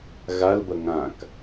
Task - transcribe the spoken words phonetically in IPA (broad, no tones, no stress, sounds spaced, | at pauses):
ɣ a l b ɐ ŋ ã k